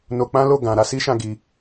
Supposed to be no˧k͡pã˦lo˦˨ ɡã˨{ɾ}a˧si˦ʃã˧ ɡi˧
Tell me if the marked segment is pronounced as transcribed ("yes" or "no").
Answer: yes